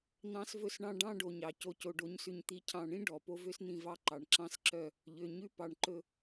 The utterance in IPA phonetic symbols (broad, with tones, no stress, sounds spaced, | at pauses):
n̪ ɑ̃˦ s v ɵ˦ s ɳ ɑ̃˦ ɖ ɑ̃˦ ɖ o˨ ɲ ɑ˨ c o˨ c o˨ ɖ o˨ ɲ s ʉ˨ ɲ t̪ i˨ cʰ ɑ̃˨ ɳ ĩ˦ ɖ ɔ˨ p o˦ v ø˦ s n̪ ĩ˦˨ v ɑ˦ ǃ ɑ˨ ɳ ǁ ɑ̃˦ s ǁ œ˦˨ | ʎ ø˨ ɲ ʉ˦ p ɑ˨ ɳ ǃ ɵ˨